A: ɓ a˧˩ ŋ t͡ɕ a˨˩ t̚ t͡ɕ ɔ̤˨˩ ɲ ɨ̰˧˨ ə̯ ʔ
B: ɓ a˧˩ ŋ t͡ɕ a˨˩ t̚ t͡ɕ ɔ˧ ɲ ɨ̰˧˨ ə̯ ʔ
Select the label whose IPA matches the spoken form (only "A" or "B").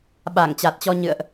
B